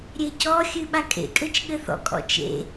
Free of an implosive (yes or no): no